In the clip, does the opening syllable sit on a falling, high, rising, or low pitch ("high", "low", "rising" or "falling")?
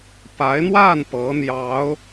rising